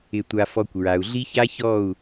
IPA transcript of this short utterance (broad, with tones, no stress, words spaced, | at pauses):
ɪ˧tʷa˧fɔ˧kʷ ɹa˨u̯ɮi˦ça˦çɔ˦˨u̯